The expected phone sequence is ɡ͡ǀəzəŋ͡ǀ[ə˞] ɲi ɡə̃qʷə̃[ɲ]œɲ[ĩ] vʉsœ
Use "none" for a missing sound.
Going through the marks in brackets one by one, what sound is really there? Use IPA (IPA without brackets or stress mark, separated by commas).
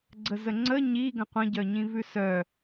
ə, ɟ, ĩ